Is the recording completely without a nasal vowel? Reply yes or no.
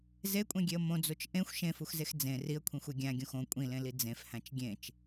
no